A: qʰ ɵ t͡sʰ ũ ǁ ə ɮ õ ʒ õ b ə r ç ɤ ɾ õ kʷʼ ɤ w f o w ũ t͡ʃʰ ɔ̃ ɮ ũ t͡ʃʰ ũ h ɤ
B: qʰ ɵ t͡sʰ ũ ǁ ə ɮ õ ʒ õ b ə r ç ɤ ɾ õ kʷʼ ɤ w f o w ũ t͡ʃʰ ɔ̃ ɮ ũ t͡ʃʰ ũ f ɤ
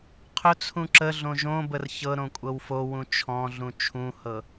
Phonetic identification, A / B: A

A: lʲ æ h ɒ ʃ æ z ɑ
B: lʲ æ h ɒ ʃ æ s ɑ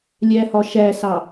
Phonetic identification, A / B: B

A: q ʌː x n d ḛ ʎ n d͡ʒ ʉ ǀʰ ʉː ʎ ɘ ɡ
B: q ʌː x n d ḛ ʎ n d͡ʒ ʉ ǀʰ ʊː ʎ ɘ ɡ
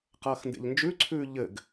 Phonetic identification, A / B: A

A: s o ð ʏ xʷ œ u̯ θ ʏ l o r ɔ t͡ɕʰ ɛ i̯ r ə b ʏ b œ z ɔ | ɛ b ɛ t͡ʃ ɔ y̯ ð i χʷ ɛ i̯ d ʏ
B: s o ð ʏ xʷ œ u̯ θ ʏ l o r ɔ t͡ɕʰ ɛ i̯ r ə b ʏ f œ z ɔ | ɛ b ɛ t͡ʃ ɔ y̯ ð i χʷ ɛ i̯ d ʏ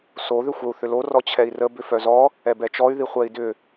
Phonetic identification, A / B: B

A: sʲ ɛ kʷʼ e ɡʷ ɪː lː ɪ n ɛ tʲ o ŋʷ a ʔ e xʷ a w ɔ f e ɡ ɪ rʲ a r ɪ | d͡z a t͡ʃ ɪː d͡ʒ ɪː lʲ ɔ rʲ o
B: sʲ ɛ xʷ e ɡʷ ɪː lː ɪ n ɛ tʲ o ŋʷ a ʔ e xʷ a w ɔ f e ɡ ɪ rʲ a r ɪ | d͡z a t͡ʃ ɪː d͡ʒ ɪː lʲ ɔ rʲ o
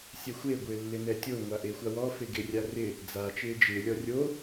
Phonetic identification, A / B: B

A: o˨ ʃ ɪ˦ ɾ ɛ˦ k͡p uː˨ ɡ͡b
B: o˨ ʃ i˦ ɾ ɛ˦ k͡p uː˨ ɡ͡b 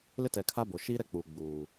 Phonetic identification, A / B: B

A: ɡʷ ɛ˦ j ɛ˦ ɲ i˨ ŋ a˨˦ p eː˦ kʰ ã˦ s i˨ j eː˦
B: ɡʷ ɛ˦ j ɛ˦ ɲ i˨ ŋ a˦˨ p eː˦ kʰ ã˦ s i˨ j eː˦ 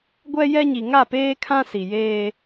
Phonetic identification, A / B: B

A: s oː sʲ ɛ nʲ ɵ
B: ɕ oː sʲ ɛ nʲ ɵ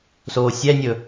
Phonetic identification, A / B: A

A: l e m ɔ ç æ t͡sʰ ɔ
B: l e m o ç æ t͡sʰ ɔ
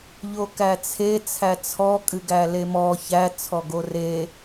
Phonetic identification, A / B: A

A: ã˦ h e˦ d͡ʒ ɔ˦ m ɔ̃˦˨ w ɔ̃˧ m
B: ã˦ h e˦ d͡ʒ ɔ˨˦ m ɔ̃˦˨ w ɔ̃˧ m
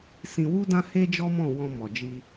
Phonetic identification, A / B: A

